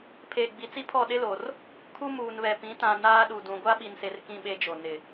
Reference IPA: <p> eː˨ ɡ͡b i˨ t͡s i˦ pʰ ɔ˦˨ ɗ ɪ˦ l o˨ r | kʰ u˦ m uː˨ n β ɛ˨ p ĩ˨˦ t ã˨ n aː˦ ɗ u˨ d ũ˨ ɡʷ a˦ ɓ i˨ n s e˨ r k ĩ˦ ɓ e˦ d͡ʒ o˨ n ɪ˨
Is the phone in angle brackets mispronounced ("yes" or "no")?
yes